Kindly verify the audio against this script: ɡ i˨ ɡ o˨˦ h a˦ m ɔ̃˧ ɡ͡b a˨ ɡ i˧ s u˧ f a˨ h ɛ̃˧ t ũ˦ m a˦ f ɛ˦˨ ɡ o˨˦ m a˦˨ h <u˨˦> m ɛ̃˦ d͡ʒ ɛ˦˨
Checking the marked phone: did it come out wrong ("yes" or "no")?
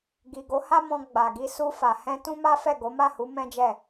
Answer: no